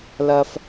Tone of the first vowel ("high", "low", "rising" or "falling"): high